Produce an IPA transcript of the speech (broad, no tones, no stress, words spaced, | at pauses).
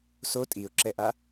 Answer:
so tʼiʊ̯ǁɛʔa